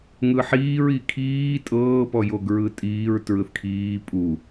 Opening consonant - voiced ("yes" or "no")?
yes